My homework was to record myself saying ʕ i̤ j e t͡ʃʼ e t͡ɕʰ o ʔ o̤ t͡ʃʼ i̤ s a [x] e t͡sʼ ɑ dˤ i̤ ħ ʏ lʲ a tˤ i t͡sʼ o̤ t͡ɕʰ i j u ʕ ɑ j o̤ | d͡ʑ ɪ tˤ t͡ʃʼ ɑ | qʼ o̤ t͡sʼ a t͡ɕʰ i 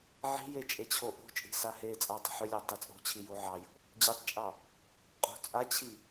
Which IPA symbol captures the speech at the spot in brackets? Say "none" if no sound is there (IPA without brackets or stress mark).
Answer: h